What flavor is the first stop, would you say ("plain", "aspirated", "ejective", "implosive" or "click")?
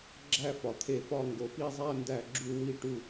click